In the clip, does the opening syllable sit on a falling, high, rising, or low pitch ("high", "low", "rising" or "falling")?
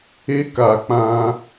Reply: high